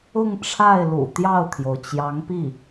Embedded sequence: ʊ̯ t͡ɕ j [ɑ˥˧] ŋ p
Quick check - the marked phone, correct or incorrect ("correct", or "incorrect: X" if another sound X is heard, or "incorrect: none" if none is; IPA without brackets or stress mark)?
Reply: incorrect: ɑ˧˥